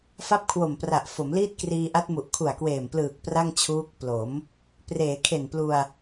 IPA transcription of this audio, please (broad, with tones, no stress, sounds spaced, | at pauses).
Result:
f a˥˩ p̚ kʰ w o˨˩ m p r a˨˩ ʔ f o˩˦ m l iː˥˩ t̚ k r iː˧ ʔ a˦˥ t̚ m u˨˩ ʔ kʰ u˨˩ a̯ k w eː˨˩ m p l ɯː˨˩ k̚ p r a˥˩ ŋ t͡ɕʰ uː˦˥ k̚ p l o˩˦ m | p r eː˩˦ kʰ e˨˩ n p l u˧ a̯